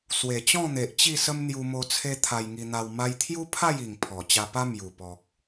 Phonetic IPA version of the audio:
s w e˨˩ t͡ɕ ɔ̃˥˧ n̪ e˨ ʔ t͡ɕ i˥˧ s ə˦ m n̪ j u˧ m o˧ t͡sʰ e˦ t̪ʰ a˧ j ŋ i˧ n̪ a˧ w m a˧ j t̪ʰ j u˦ pʰ a˥˧ j i˨˩ ŋ pʰ ɔ˨˩ t͡ɕ a˧ p a˦ m j u˨˩ p ɔ˨ k̚

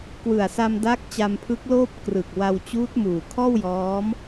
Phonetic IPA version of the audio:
k w ɯ˨˩ a̯ s a˧ m d a˦˥ k̚ t͡ɕ a˧ m pʰ ɯ˦˥ k̚ l oː˥˩ p̚ k r ɯ˨˩ k̚ w a˧ w t͡ɕ uː˦˥ t̚ m uː˨˩ kʰ ɔː˥˩ w j ɔː˦˥ m

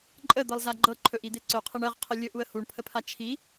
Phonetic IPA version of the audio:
ǃʼ ə d̪ ɤ lˠ z a ɡ͡ǃ ɤ ǃʰ ɵ ʔ i d̪ e ǀ ɵ qʰ e ɳ ɜ ʁ qʰ ə lʲ ɵ ʔ u ə̯ h u ɳ pʰ ə pʰ a t͡ʃʰ i

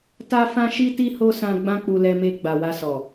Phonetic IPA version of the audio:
t a˦ f ã˦ ʃ i˦ t i˦ h o˦ s ã˧ ɡ͡b ã˦ k͡p u˧ l ɛ˧ m e˧ ɡ͡b a˨ w a˧ s ɔ˨

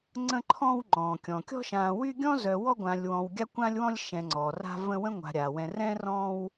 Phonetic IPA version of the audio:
ŋ͡ǀ ə̃˦ ǃʰ ɔ̃ː˦ w ŋ͡ǃ ɔ̃ː˩ kʲ ɔ̃˩ kʲ ɔ̤˦ ʃ ãː˨ w y˦ ɡʲ ɔ̃˥ z œ˨ w ɔ˦ ɡʷ ãː˨ lʲ w ɔ̃˨ w ɡʲ a˦ kʷ ã˦ lʲ w ɔ̃˦ lʲ ʃ ɛ̃˨ ŋ͡ǀ ɔ˩ r a̤˦ v ə̃˦ w ə̃˥ ŋʷ a̤˨ ɾʲ a˩ w ɛ̃˨ r ɛ̃˥ r ɔ̃ː˦ w

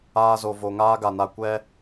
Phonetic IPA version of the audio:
aː˧ z o˨ v o˨ ŋ aː˦ ɡ a˨ n a˧ kʷ ɛ˦

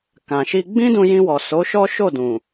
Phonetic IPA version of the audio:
k ã˨ ʃ i˧ ɡ͡b ĩ˦ d ũ˧ j ĩ˧ w ɔ˨ s o˨˦ ʃ ɔ˦ ʃ o˦˨ d ũ˨

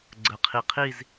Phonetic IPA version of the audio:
ɡ͡ǀ ə˩ qʰ i˩ qʰ i˦˨ z

